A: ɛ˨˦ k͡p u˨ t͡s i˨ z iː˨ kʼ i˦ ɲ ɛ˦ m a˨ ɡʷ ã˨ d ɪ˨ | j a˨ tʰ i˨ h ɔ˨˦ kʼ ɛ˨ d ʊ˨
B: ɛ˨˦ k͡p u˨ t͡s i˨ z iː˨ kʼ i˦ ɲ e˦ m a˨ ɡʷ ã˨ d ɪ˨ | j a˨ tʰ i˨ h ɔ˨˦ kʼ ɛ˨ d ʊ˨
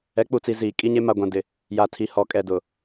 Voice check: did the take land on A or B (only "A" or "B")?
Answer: B